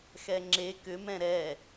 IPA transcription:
xɛŋ͡ǁe kʏmɛ̃ ɾɛ

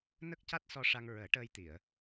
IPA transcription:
nə˦˥k̚ca˦˥t̚sɔ˧ ʂa˧ŋɹəː˨˩˦ ʈəː˧jt̪i˨˩˨ə̯

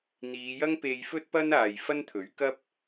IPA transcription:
n̪iː˨˧jɐ˥ŋ pe˧jfɵ˥t̚ pɐ˥naː˨jfɐ˥n t̪ʰɵ˨˥ɥkɐ˥p̚

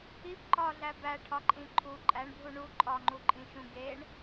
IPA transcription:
ip ǃɒɮæ bæʈʰɒǃʼĩ ǃʰu ǃʼæɳbʱu ɳu ǃʼɒŋ͡ǃuǃʼĩʃũ ɡeɳ

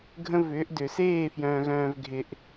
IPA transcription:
ɡʱə̃˦vʏː˨˦ʔdʏː˨s eː˦˨fjœ̃ː˨ɣœ̃ː˨v ɡʱɪ˨ʔ

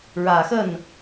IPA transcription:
ɻä˨˩xə˥˩n

